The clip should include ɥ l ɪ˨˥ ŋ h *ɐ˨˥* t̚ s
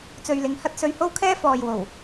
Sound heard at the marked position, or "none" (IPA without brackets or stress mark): ɐ˥